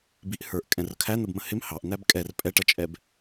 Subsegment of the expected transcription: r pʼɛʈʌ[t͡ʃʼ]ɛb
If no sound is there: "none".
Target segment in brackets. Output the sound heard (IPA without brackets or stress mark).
t͡ʃʼ